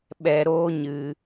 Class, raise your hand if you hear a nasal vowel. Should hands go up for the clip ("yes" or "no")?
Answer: no